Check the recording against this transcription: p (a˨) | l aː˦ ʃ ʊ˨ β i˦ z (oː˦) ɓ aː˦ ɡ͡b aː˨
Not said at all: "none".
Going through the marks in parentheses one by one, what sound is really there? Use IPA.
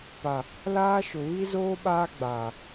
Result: a˨, oː˦

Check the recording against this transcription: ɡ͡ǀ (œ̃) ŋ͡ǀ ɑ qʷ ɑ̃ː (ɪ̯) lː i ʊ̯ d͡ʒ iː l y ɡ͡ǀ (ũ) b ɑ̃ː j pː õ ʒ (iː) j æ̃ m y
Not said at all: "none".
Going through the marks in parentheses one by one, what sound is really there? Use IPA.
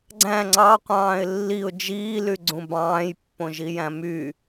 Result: æ̃, ɪ̯, ũ, i

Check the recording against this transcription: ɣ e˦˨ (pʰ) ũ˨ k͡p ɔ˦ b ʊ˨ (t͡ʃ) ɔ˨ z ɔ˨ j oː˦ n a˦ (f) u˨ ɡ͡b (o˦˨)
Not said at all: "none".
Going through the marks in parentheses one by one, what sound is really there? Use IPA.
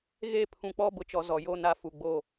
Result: pʰ, t͡ʃ, f, o˦˨

